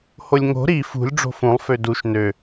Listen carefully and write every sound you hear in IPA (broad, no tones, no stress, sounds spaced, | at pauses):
h o lʲ ŋ o̤ ɾ i f ṳ lʲ ɖ͡ʐ o̤ f ũ lˠ f ø d u ʃ n ø